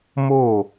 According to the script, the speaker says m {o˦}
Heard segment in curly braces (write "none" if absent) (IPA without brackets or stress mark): o˦˨